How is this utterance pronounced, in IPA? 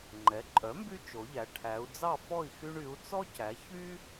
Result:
ŋ͡ǃɛ˩˥ǃʼœ˩˥mby˦ t͡ʃo˩˧ʎæ˩˧ ʈʰæ˩˧u̯d͡zɑ˥˨fɔ˥˨i̯xy˦ɳ y˩˧u̯t͡sɔ˦cæ˩˧ çy˦

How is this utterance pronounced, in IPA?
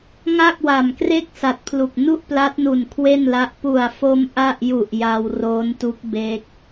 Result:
ŋa˥˩k̚wa˨˩mkre˥˩k̚ sa˨˩t̚pʰlu˨˩k̚ nu˥˩ʔpla˦˥t̚nu˨˩n kʰwe˥˩nla˦˥ʔ pu˨˩a̯fo˧m ʔa˥˩ʔ ju˨˩ʔ ja˧wroː˦˥ntu˦˥k̚ be˦˥k̚

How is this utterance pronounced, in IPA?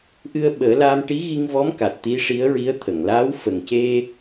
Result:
ʔɨ˧ə̯ɓəː˨˩˦laː˧m ʈi˧˥ɣi˧ŋvɔ˧˥m ka˨˩t̚ t̪i˧˥ʂi˧˥ə̯ɹi˧˥ə̯ t̪ʰə˨˩˨ŋlaː˧˥w fə˨˩ŋce˧

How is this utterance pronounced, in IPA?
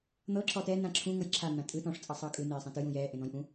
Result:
n̪ɤ ǁɔtɛ nãǁʰũ ŋɤjǁʰa n̪ãtʼɯ tɔ̃ʂ t͡sʼɤsˤɤːkʼɯ neːsˤɛ̃tɯj ũjɛː ʔẽn̪ɔ̃jʔũ

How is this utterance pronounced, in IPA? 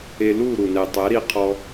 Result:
e˧lu˦˨ ɾu˨nɛ˨ tˤɛ˨˦ɾi˧qʰɔ˧

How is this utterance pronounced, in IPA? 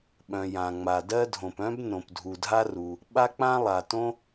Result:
ɓœ̃˩ jã˩ŋ͡ma˩ dɜ˥dʱõ˩p œ̃˥b nõ˩pdʱu˩ dʱa˥ru˩ | ɓa˥k͡pã˥ lˠa˩ tõ˥

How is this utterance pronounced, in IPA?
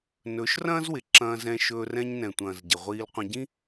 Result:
nɵ˨˦ʃ rɐ̃ː˦zwɪ˨ǁɐ̃ː˧ zɛ̃˧ʃɵː˧ rɛ̃˧ɲnɛ̃˨tʷɐ̃ː˨z ɟɪ˨ʁʷiː˧lqʷɐ̃˧ɟĩ˦

